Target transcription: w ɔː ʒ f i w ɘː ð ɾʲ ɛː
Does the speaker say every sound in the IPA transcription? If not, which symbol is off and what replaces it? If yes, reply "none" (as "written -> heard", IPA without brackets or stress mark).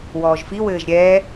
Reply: ð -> ʒ